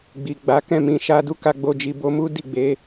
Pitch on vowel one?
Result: low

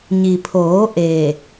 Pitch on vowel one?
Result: low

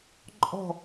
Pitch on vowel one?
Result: falling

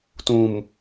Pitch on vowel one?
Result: low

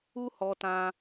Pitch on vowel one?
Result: high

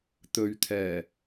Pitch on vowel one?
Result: low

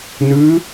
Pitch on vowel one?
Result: rising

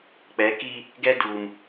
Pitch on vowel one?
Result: rising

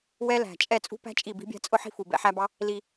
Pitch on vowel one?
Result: high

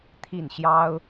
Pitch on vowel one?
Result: falling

